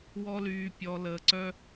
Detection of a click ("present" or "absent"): present